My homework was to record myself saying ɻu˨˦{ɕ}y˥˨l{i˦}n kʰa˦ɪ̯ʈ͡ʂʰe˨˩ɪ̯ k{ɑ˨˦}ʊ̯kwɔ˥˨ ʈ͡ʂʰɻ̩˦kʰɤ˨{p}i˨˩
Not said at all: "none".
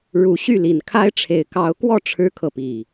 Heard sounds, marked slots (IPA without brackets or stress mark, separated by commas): ɕ, i˨˩, ɑ˨˦, p